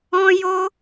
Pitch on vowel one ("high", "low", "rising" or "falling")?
high